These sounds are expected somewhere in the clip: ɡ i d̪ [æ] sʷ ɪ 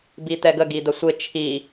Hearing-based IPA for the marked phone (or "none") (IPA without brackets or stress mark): ə